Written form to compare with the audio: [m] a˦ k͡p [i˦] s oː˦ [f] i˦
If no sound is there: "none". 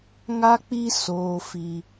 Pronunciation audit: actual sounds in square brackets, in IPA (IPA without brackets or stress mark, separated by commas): ŋ, i˦, f